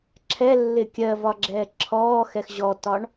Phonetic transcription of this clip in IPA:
ǁʰɛ lːɪkʲɜ vɒɡ͡ǁɛːǁʰɔː xɛxʑɔtɒɳ

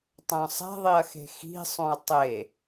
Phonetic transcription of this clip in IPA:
tˤœ̃sˤɛ̤ðˤiɐ̯xe̤ xi̤sˤõɐ̯ tˤe

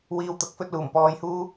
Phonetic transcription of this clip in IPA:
wiː˨wt̪ɐ˨˥k̚fɵ˧t̚luː˨˩m pɔː˧jhuː˥

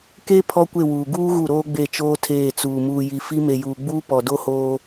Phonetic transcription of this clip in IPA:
ke˦ pʰɔ˦kʷe˦˨wuː˨ ɡuː˦ ɣu˦˨ɾoː˦ɡ͡be˦˨t͡ʃoː˦ tʰeː˦˨t͡suː˨ muː˨ji˨ fi˦ me˨juː˨ɡ͡buː˦ pɔ˨do˦ hoː˦

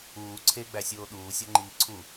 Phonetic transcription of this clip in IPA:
uː ǀʰeɡ͡bæsʲoː ɗuːsʲɒŋ͡ǃiː ǀʰu

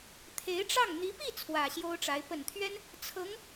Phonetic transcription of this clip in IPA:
t̪ʰe˧˥ɪ̯ʈ͡ʂɑ˥˩ŋ n̪i˧˥pi˥˩ t͡sʰwä˨˩ɕjo˥ʊ̯ʈ͡ʂa˧˥ɪ̯ pə˨˩nt̪ʰɥɛ˥n | t͡sʰɤ˧˥ŋ

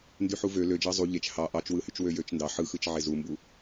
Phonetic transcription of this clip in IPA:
ndyħuvø lød͡ʒɑ zˤu ʎet͡ʃ hɑ ʔɑt͡ʃwɯhyt͡ʃ wøjøt͡ʃndɑ ħɯxɯt͡ʃʕe zumbu

